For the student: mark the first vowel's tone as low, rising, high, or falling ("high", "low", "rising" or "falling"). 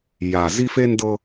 low